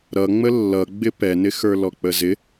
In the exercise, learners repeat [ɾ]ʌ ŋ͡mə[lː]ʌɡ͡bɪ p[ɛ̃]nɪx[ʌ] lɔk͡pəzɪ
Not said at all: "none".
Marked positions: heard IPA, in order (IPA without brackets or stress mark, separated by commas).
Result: ɾ, lː, ɛ, ə˞